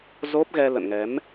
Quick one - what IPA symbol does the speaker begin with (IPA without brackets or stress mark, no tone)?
z